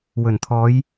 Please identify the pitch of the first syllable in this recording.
low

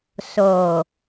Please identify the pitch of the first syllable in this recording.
low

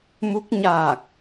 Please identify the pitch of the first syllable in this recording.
rising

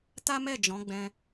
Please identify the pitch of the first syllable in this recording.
high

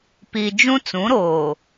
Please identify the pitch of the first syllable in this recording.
low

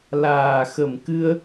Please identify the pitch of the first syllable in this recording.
low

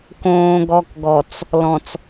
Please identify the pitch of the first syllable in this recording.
low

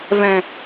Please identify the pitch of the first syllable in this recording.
low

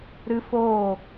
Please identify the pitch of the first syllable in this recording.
high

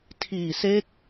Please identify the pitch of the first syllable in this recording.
low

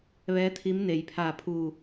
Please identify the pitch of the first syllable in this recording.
rising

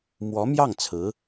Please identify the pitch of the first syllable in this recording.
rising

